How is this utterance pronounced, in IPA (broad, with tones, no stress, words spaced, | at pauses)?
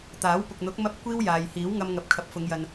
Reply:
t̪aː˨˥wpʊ˨k̚n̪ʊ˨˥k̚ mɐ˥p̚ kʷiː˥wjaː˨jhiː˨˥w ŋɐ˧mŋɐ˨p̚ kʰɐ˨p̚fʊ˨˧ŋjɐ˨n